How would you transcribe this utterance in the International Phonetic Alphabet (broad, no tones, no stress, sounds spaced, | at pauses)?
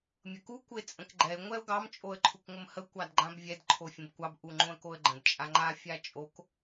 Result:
mʲ ə k u kʷ ə ɪ̯ t͡sʼ ə̃ k ɡ͡ǃ ɛ ɪ̯ ŋʷ ɛ ʊ̯ ɡ ɑ m t͡ʃʼ o ə̯ ǃʰ u kʷ ŋʷ ə m h ə kʷ ɑ d ɡ͡ǃ ã b vʲ ɛ d ǃʰ o fʲ ə̃ b kʷ ɑ b ʔ u ŋ͡ǃ õ ə̯ k o ə̯ ɡ͡ǃ ə̃ d t͡ʃʼ a ŋ͡ǃ a fʲ a t͡ʃʼ o k